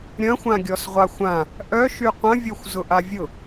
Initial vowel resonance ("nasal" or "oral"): nasal